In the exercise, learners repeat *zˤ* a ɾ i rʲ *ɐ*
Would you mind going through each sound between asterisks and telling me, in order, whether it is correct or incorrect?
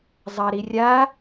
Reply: correct, incorrect

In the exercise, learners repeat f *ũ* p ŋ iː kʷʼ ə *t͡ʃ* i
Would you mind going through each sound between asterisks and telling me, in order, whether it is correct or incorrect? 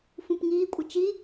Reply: correct, correct

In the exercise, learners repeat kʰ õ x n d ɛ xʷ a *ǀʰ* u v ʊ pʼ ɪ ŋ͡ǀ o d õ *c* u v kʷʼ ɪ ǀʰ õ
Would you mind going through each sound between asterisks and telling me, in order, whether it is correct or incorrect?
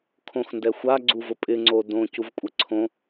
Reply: incorrect, correct

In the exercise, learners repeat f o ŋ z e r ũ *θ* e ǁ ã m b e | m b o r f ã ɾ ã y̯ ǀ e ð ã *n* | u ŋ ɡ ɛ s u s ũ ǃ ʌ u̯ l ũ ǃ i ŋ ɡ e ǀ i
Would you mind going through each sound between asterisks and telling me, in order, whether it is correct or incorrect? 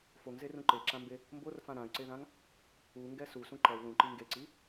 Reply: incorrect, incorrect

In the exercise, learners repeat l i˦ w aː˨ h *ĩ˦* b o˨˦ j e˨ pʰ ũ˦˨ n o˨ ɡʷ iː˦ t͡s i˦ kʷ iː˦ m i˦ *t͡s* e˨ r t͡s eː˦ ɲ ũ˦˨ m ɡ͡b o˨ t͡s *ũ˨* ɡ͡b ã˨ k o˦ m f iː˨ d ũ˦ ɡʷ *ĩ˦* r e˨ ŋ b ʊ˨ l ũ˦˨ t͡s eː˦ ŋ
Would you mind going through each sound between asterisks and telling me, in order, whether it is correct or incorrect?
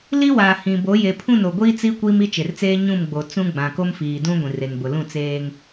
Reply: incorrect, incorrect, incorrect, incorrect

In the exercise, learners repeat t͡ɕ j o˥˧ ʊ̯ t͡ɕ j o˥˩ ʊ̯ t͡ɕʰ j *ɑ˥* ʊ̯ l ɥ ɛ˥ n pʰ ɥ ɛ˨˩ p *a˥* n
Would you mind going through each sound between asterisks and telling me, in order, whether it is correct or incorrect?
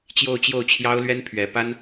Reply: correct, correct

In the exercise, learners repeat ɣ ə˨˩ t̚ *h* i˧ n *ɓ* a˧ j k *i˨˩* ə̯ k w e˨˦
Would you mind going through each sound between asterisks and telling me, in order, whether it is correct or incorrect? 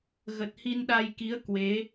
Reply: correct, incorrect, incorrect

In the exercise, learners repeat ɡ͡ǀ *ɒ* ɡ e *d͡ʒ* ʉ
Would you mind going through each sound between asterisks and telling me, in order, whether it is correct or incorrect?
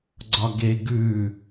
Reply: correct, incorrect

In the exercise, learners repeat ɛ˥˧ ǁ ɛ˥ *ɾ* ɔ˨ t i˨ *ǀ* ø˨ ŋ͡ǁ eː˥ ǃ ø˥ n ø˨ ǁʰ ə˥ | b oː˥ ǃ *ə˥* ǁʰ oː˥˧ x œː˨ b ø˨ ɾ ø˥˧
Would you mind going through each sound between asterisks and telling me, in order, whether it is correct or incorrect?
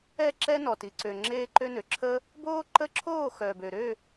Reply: incorrect, correct, incorrect

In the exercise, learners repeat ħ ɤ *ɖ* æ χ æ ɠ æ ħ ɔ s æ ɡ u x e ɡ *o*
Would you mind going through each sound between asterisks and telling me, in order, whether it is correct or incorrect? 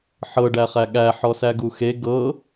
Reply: correct, incorrect

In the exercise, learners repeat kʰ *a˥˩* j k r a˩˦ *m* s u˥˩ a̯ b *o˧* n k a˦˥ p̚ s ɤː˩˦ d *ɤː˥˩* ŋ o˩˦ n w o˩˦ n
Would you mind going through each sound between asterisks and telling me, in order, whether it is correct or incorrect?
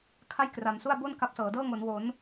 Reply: correct, correct, incorrect, correct

